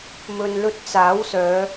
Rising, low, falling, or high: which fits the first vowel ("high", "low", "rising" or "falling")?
low